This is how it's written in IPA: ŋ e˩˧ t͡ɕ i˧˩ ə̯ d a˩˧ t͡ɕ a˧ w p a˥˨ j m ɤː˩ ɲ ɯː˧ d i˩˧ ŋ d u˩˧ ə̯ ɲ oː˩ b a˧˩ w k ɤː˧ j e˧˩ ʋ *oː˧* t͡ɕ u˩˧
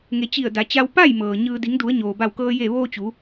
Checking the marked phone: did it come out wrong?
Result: no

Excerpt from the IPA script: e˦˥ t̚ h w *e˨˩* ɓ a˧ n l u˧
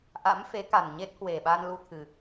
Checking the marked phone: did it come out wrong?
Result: no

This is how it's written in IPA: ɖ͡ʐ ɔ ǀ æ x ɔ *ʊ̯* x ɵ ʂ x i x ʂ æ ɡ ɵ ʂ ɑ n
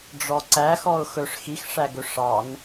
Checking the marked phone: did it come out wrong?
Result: no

